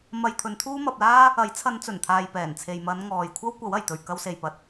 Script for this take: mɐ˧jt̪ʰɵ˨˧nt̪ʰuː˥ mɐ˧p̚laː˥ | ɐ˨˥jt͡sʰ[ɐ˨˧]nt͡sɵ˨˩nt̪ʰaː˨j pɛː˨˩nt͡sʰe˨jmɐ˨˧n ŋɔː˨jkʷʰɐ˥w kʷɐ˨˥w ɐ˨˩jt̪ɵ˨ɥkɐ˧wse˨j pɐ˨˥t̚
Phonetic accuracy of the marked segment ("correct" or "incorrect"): correct